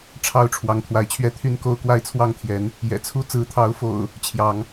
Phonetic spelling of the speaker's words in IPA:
ʈ͡ʂʰɑ˥˨ʊ̯ʈ͡ʂʰwɑ˨˦ŋ t̪ʰwa˨˦ɪ̯t͡ɕʰɥɛ˦ t̪ʰy˦n ko˦ʊ̯kwa˦ɪ̯t͡sʰwɑ˥˨ŋt̪ʰjɛ˨˦n | jɛ̰˨˩t͡sʰu˦ t͡sɹ̩˨˦t̪ʰɑ˨˦ʊ̯fo̰˨˩ʊ̯ | t͡ɕʰjɑ˨˦ŋ

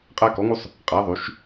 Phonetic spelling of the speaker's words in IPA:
qʼæ˧ kɔ˩˧ŋu˧sˤ | qʼæ˩˧ðˤy˩˧ʃ

